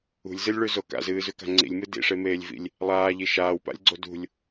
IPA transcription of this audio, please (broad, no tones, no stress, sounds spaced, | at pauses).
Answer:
ṳ lʲ z ɨ lʲ ɭ ʉ z o k a̰ z ɨː z ʉ k a̤ ŋ͡ǀ ḭ lʲ m ɨ d ḭ ʂ e m eː lʲ v ḭ lʲ | lˠ aː ʎ i ʃ aː w p a̰ lʲ ɡ͡ǀ o d ṳ lʲ